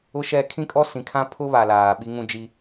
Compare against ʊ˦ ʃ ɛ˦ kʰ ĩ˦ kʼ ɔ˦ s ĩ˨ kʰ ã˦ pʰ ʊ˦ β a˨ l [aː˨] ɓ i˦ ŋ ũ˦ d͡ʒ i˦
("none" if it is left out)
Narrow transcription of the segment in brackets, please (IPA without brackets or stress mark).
aː˨